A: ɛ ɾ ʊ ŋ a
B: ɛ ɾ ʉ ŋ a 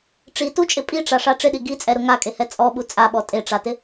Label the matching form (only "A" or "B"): A